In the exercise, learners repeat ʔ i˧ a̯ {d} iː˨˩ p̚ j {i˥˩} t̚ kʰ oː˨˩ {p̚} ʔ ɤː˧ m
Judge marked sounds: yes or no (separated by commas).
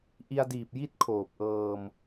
yes, yes, yes